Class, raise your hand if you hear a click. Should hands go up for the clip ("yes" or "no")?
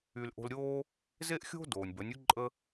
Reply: yes